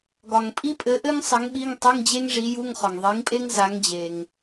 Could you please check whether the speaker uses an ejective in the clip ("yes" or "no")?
yes